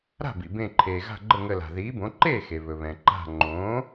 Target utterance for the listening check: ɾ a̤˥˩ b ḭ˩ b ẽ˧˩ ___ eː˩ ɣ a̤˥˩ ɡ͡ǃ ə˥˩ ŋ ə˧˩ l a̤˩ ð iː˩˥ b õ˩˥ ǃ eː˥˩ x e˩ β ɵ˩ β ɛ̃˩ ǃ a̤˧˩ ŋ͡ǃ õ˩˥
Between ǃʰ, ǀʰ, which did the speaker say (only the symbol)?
ǃʰ